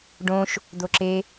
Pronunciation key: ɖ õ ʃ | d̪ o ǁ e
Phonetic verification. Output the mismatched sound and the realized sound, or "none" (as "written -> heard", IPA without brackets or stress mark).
none